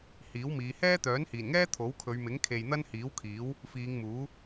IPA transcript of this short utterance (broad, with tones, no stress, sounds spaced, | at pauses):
h iː˨˥ w m iː˨˧ h ɛː˥ t̪ œː˨˥ n h iː˨˩ n ŋ ɛː˥ t̪ʰ o˨˥ w kʰ ɵ˨˧ ɥ m ɪ˨˥ ŋ kʰ e˨ j n̪ ɐ˥ n h iː˨˥ w kʰ iː˨˥ w | f iː˨˧ ŋ m uː˨˥